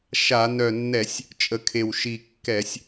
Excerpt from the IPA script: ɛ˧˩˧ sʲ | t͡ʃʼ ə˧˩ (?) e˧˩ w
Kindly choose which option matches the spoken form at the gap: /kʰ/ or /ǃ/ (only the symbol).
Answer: kʰ